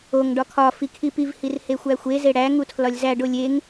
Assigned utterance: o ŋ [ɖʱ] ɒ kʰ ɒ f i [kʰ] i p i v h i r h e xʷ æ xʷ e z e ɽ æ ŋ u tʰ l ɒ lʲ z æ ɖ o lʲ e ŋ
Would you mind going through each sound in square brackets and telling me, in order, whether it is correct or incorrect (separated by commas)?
incorrect, correct